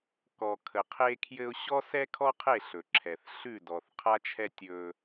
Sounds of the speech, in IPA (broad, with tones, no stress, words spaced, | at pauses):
kɔ˨kʰə˨qʰe˦kʰjɘ˦ʊ̯ ɕɔ˦sɛ˦kʰɔ˦qʰe˦˨ ɬɵ˨ǁʰɛ˨θ ɬʉ˦˨dɔ˨θqʰa˦t͡ʃʰɛ˦ tʲɵ˦